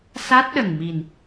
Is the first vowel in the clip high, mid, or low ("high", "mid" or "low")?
low